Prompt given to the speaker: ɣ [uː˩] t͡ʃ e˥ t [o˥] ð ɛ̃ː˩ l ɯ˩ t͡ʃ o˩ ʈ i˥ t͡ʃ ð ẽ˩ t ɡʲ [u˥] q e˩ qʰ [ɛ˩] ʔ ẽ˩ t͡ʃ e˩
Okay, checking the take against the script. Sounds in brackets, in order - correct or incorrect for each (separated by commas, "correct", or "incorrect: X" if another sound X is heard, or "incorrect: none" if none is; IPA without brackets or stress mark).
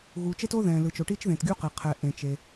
correct, correct, correct, correct